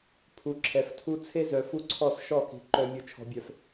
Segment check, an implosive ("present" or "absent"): absent